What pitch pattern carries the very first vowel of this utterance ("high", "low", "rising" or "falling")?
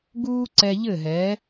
high